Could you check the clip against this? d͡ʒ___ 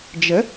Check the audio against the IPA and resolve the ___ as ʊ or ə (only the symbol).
ə